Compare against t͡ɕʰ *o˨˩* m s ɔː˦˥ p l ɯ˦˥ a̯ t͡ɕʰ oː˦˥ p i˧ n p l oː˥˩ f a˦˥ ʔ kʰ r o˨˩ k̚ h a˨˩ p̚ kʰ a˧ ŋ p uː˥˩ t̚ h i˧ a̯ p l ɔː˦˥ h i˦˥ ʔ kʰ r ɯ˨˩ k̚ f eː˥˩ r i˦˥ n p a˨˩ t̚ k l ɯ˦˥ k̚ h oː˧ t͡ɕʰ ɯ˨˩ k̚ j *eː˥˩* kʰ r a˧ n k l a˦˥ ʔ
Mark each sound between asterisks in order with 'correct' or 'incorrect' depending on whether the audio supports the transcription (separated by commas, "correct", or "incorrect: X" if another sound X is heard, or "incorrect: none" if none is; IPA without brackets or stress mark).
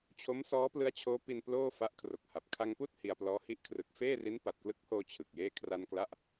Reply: incorrect: o˦˥, correct